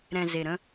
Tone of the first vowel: low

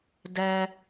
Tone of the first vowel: low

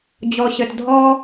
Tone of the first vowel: low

